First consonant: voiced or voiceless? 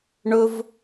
voiced